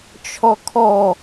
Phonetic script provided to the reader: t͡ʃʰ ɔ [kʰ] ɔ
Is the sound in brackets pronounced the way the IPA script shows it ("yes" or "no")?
yes